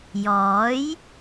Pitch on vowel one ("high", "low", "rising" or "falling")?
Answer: rising